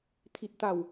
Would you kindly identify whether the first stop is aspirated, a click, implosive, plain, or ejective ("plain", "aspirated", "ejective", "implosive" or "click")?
aspirated